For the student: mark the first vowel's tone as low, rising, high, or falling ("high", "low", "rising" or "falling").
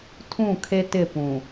falling